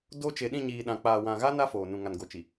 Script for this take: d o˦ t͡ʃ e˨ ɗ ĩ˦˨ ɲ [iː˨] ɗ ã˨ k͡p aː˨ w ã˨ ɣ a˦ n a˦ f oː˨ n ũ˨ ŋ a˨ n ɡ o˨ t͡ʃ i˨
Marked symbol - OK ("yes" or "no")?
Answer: yes